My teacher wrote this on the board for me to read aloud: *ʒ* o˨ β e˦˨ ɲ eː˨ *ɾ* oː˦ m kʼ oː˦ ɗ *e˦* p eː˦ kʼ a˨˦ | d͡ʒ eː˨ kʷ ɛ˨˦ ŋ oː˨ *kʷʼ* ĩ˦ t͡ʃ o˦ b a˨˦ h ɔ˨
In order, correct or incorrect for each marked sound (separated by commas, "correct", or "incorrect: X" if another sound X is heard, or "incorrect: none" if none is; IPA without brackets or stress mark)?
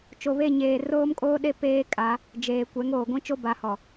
incorrect: t͡ʃ, incorrect: r, correct, incorrect: ɡʷ